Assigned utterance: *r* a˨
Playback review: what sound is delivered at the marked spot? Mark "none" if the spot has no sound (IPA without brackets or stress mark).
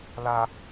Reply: l